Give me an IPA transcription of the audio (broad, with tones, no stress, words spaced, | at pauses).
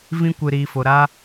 vĩ˦kʷɨ˨ɾiː˨ fo˨ ɾa˦